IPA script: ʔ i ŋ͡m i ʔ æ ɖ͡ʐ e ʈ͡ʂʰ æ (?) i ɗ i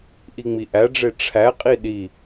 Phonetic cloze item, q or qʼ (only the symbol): qʼ